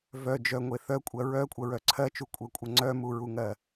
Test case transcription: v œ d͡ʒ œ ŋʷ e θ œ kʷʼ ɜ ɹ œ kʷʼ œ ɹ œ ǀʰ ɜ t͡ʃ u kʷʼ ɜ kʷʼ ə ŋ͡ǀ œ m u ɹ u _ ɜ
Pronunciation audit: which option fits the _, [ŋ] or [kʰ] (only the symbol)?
ŋ